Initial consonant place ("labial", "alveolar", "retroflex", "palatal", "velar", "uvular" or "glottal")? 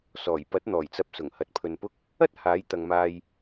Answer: alveolar